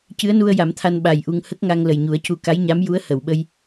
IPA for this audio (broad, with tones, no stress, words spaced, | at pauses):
cɨ˧˥ə̯nu˧ə̯ ja˨˩˦mt̪ʰa˧n ɓa˨˩jʔu˧ŋ hə˦˥k̚ŋa˧ŋ lə˨˩jɲu˨˩˦ə̯cu˧ ka˧˥jɲa˧˥m ju˧˥ə̯hə˨˩˨wɓə˧j